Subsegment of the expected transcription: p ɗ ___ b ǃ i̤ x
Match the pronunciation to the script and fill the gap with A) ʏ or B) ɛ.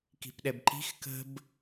B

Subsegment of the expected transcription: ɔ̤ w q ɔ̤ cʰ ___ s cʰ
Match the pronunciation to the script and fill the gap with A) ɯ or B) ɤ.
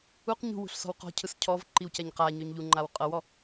A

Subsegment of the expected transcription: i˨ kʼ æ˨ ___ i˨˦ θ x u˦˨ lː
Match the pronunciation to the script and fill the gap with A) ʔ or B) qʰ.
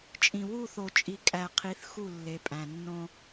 B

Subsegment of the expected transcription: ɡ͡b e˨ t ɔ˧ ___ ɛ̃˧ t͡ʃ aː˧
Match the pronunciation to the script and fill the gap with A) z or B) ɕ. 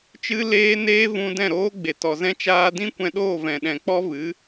A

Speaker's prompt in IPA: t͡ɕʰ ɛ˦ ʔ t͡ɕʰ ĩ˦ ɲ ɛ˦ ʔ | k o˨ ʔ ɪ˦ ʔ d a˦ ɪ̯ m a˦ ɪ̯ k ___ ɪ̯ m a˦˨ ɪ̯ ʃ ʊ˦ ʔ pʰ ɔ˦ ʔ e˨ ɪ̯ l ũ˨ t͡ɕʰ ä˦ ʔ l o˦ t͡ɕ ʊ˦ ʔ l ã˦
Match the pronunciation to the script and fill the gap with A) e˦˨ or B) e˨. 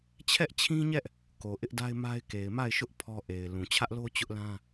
B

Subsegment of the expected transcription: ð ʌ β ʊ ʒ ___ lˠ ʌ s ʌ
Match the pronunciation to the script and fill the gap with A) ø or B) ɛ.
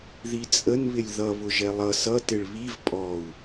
B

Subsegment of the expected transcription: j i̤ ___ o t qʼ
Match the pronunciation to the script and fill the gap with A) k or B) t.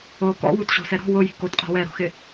A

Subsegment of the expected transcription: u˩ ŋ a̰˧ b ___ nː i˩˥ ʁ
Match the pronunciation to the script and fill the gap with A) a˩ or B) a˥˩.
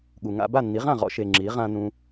B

